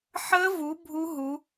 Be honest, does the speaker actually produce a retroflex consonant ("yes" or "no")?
no